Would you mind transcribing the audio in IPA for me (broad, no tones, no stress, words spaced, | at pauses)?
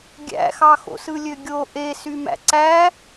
ɡʲæ̰xɑxo̰ sɯlʲøɡʲo ʔesymæ̰ ǀæ